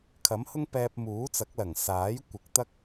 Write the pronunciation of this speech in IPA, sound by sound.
kʰɐ˨˥mhʊ˥ŋ pɛː˧p̚muː˨˥t͡sɐ˨˥k̚lɐ˨˩ŋ saː˨˥jkʷɪ˨˥k̚ t̪ɐ˥k̚

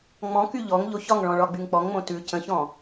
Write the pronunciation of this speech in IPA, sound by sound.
ŋ͡mɔ̃ky ʎɔŋ ʎoçɒŋɭɔ̃ ɭɒɡ͡byŋk͡pɔŋŋ͡mõ tʉ cə̃çɔ̃

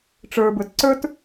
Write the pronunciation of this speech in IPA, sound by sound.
ʈ͡ʂə˞bə˞t ǀə˞t

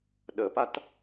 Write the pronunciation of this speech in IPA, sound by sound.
ɗəpat

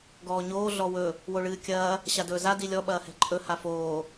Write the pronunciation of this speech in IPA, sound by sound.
ɡɔːɲoː ɮɔwɵ | woɭɨːkʲɐː | ɕadɵːza dilʲɔ ɓɐːhɛ̤ǃʼɵ hafoː

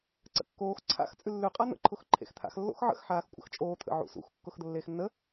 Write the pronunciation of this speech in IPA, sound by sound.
ǀə̰kːoːx ǀʰa̰x t͡sʼʉlːʉ qʼan̪ə̰ ǃʰʊxǃʰḛxt̪ʰa̰x lːo̰xʕə̰x ħaːxkʷʼə̰xt͡ʃʼoː t̪ʰə̰ʕṵsṵx kːʊxd̪əlːeːxnːə

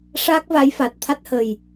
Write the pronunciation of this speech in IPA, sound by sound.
ʂaː˦˥k̚va˧˥jfa˨˩t̚ t̪ʰa˦˥t̚hə˨˩j

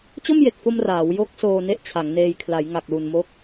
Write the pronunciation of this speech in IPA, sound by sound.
t͡ɕo˥˩mje˨˩k̚fo˧m raː˩˦w jo˦˥k̚ soː˧ne˥˩ʔt͡ɕʰa˩˦ŋneː˧j kʰla˩˦jŋa˨˩k̚lu˨˩nmo˦˥k̚

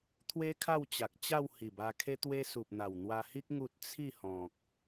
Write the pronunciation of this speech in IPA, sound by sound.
t̪ʰwe˦kʰa˥˧wt͡ɕa˨k̚t͡ɕa˥˧w hi˨˩ba˧kʰe˦t̪we˦ su˨p̚n̪a˨˩w n̪wa˧hi˦k̚ ŋu˦t̚ t͡sʰi˥˧hɔ̃˨k̚

